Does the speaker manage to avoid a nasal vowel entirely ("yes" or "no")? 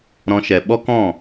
no